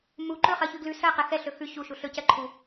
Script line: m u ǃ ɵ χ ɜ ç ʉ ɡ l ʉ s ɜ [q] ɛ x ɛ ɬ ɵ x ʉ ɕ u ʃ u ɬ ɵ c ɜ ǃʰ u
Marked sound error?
no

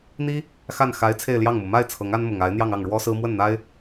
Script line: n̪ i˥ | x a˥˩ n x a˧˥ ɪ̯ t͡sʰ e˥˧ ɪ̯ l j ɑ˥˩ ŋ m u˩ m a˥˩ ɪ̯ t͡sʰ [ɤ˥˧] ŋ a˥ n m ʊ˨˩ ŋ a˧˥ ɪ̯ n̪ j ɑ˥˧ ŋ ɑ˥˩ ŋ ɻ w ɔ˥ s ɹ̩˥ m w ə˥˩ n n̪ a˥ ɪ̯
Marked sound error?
yes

